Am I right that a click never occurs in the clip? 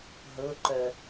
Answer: no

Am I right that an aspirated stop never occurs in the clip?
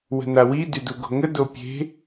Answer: yes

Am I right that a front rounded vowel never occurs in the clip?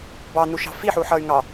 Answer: no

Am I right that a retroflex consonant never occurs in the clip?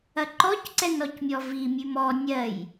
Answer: yes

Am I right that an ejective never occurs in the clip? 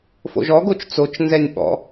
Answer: yes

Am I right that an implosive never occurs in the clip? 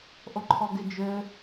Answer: yes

